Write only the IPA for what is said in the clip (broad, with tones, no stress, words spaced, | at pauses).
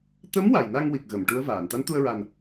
t̪ə˧˥m wa˨˩jna˧ŋwi˨˩k̚ ɣə˨˩˨mʈu˧˥ə̯vaː˨˩˨n t̪a˧˥nt̪u˧ə̯ɹa˨˩n